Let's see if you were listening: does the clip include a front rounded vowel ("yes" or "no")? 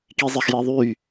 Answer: yes